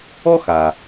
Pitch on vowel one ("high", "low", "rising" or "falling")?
high